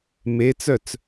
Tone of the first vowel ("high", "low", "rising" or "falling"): rising